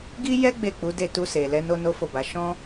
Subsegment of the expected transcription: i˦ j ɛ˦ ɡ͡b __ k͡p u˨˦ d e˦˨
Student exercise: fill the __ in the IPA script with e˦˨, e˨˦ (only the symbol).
e˦˨